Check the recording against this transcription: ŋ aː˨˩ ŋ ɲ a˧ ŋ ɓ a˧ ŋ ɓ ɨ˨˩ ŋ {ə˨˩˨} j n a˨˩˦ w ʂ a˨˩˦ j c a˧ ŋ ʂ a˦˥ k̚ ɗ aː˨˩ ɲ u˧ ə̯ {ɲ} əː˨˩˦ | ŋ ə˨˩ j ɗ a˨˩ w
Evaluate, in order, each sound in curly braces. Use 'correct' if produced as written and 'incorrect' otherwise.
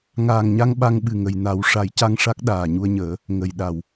correct, correct

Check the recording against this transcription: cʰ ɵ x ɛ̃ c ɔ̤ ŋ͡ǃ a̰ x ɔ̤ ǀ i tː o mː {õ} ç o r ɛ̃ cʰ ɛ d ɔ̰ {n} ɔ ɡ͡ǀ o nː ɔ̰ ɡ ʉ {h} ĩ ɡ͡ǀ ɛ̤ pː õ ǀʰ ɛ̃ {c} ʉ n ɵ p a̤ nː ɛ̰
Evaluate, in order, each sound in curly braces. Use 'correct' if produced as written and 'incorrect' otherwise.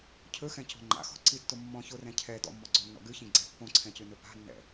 incorrect: ɔ̃, incorrect: mː, incorrect: ç, correct

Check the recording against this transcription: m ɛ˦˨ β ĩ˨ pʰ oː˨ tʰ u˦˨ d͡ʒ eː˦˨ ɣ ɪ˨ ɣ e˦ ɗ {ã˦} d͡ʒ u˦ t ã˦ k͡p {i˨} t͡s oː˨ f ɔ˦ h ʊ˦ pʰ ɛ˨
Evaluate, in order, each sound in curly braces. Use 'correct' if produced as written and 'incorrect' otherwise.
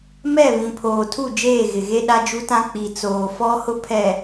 incorrect: a˦, correct

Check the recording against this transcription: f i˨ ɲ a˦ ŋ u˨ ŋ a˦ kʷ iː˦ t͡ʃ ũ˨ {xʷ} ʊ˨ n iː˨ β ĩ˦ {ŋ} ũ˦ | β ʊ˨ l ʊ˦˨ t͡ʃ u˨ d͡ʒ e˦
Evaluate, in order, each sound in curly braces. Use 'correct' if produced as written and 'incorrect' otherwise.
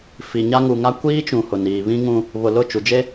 incorrect: h, correct

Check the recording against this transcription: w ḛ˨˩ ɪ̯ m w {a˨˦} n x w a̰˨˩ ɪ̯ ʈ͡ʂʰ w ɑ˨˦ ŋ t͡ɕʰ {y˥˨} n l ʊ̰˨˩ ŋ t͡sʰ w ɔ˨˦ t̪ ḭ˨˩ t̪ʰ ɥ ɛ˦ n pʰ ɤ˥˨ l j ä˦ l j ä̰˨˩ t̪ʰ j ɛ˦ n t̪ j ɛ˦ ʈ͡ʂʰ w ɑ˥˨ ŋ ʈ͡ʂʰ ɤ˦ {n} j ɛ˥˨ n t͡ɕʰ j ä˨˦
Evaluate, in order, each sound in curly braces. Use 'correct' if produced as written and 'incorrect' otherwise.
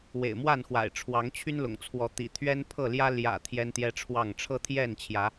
incorrect: a˥˨, incorrect: y˦, incorrect: t̪ʰ

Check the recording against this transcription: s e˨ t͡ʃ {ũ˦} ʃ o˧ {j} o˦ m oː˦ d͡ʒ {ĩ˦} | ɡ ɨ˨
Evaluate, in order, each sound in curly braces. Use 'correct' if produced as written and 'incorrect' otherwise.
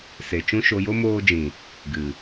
correct, correct, incorrect: ĩ˨

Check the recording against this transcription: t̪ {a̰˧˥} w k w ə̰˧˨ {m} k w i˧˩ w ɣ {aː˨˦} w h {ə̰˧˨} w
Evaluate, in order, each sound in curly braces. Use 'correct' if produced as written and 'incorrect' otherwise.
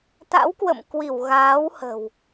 correct, correct, correct, incorrect: ə̤˨˩

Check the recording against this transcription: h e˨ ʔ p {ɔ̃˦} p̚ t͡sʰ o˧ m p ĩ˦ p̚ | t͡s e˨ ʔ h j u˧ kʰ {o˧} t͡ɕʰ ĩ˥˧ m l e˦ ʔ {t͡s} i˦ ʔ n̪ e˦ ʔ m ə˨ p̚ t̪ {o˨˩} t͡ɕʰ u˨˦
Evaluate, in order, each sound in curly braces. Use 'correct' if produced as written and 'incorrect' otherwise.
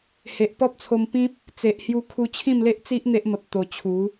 incorrect: ɔ˦, incorrect: u˧, correct, correct

